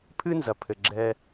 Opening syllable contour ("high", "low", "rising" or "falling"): high